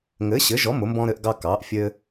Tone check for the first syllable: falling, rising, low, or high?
rising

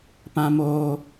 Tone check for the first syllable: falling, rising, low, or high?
high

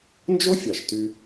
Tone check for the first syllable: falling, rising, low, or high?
high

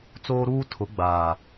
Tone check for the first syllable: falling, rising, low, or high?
high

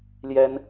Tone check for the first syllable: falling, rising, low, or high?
high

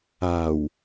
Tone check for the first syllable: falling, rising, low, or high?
low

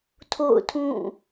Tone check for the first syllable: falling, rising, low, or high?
falling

